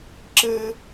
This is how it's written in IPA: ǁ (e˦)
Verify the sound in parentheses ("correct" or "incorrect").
incorrect